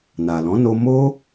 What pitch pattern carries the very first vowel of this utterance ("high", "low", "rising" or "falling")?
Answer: low